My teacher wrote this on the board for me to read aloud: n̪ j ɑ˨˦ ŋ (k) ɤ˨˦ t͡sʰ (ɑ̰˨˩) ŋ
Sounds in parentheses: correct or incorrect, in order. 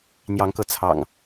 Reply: correct, correct

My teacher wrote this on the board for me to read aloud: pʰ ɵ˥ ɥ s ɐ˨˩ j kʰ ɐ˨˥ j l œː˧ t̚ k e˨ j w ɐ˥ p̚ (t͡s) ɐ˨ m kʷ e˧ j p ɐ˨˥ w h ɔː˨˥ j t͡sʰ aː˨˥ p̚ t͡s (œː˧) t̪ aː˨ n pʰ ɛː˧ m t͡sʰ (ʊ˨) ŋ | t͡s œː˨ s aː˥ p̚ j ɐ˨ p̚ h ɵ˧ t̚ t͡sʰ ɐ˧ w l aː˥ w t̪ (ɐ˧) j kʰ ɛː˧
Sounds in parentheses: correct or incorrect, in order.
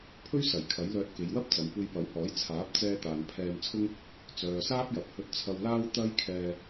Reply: correct, incorrect, incorrect, incorrect

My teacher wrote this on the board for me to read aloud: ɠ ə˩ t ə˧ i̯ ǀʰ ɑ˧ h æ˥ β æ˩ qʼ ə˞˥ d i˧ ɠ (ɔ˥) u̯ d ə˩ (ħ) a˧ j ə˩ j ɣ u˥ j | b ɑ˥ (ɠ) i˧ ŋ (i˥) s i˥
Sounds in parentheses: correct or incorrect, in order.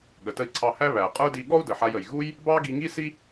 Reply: correct, correct, incorrect, correct

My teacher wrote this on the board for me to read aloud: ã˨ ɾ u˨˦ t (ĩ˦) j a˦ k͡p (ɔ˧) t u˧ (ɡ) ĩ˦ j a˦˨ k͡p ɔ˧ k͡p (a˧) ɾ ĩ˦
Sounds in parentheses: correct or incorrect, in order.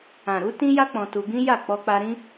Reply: correct, incorrect, correct, correct

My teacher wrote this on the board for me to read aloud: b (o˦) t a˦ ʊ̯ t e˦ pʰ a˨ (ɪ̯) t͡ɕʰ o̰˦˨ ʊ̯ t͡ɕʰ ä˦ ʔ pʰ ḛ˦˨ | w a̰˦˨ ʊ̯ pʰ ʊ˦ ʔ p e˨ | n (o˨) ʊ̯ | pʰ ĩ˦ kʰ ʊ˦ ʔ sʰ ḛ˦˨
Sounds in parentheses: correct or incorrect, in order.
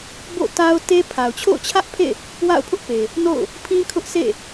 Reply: incorrect, incorrect, incorrect

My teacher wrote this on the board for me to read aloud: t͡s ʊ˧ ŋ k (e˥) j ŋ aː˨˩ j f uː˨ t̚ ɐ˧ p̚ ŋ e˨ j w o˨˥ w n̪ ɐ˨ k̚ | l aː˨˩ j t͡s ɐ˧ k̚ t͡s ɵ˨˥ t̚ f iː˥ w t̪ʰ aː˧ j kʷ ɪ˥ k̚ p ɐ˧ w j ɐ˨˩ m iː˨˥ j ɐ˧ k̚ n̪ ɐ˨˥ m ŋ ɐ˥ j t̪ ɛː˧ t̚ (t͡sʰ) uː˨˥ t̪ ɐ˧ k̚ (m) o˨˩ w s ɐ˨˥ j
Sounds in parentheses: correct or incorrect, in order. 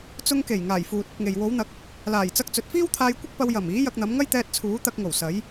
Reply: incorrect, correct, incorrect

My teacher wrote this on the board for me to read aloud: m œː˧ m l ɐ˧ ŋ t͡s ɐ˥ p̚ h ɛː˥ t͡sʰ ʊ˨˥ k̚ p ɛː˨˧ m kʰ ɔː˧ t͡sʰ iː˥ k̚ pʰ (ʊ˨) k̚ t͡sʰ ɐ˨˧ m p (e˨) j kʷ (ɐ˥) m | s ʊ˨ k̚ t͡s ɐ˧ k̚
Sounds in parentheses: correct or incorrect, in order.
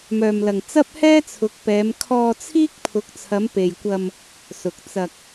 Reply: incorrect, correct, incorrect

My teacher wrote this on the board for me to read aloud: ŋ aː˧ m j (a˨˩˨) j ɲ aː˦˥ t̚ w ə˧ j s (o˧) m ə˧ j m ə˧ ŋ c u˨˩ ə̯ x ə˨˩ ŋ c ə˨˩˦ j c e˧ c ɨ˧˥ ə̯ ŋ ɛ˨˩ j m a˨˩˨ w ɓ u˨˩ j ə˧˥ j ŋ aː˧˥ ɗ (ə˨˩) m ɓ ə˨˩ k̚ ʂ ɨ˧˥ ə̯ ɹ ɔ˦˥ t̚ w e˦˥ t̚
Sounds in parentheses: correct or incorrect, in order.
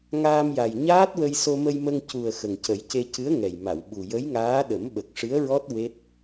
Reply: incorrect, correct, incorrect

